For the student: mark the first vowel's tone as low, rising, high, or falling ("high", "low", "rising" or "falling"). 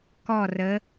falling